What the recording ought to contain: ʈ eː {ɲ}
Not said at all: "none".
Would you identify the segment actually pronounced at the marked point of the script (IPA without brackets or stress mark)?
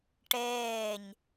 ɲ